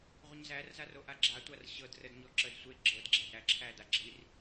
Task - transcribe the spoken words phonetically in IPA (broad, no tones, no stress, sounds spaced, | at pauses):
ʁʷ ə ɲ z æ r z a r o ʔ a ɡ͡ǁ a tʷ a r ɕ ɤ d r ə d ɲ ɔ ǁ ə d sʷ e ɡ͡ǁ ɤ d ɡ͡ǁ æ d ɾ æ ǁʰ æ d a ɡ͡ǁ i r